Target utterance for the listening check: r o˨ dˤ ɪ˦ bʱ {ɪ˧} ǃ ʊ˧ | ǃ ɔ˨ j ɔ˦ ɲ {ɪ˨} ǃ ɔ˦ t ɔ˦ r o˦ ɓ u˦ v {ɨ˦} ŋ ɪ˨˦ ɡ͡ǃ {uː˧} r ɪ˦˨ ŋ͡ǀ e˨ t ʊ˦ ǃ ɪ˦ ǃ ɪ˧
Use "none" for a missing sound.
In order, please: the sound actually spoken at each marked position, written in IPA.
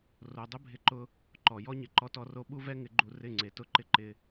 ɪ˧, ɪ˨, ɛ˦, u˧

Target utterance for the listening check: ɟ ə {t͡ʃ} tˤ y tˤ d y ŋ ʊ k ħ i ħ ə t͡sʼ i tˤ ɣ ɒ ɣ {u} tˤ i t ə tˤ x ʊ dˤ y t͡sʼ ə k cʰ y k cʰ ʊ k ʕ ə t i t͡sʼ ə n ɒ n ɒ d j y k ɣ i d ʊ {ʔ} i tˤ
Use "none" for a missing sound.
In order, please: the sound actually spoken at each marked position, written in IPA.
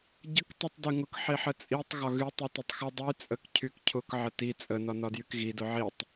k, y, ʕ

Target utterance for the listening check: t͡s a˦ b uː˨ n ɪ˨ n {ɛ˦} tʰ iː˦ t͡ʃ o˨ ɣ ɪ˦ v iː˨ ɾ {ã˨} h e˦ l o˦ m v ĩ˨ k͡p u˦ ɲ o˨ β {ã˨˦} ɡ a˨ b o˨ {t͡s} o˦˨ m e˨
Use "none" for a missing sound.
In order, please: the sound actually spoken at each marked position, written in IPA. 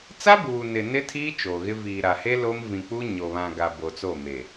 ɪ˦, a˨, ã˨, t͡s

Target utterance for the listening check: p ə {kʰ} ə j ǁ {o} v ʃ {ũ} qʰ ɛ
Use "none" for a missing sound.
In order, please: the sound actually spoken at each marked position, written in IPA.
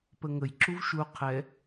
ŋ, u, u

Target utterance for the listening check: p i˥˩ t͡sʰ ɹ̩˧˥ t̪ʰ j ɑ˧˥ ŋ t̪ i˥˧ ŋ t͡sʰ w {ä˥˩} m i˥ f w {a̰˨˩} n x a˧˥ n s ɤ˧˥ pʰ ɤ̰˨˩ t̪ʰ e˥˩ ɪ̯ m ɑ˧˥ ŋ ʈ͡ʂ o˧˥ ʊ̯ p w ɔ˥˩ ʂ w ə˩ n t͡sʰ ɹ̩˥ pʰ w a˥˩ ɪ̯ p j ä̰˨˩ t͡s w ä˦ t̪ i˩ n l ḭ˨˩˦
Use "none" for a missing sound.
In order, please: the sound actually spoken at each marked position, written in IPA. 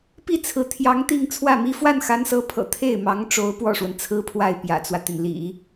ä˥˩, a˥˩

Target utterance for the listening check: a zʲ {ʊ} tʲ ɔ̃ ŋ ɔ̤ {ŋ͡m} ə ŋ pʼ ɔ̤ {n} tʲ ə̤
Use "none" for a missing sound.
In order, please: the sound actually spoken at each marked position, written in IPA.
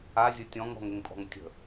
ʊ, ŋ, ŋ

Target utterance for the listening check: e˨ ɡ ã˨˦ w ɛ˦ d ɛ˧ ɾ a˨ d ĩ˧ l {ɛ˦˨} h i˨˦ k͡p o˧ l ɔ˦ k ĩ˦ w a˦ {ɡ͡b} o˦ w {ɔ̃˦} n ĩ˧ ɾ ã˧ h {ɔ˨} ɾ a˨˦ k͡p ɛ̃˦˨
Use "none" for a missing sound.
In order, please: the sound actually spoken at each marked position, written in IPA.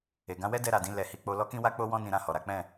ɛ˨, k͡p, ɔ̃˦, ɔ˨

